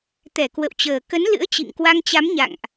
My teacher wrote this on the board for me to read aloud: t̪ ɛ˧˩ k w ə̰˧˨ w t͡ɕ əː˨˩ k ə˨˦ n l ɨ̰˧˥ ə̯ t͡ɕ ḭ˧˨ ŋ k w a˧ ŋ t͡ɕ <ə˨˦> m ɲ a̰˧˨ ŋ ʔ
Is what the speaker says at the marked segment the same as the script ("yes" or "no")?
no